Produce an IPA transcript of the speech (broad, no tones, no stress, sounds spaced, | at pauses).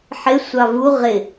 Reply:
ħ ɪ sʷ ɑ v u ʁ ɪ